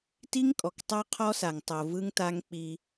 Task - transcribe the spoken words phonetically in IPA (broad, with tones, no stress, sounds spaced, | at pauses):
t i˦ ŋ kʼ ɔ˨ k tˤ a˦ qʰ ɔ˦ s a˨ ŋ tˤ o˨ v ɯ˦ ŋ t a˦ ŋ k͡p i˦